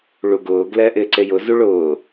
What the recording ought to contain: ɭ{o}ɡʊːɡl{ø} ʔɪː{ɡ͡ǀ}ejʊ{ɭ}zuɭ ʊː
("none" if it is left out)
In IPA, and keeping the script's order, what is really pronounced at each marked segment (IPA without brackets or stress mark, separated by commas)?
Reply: u, ɛ, ǀ, none